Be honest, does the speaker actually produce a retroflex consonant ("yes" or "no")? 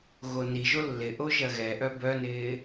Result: no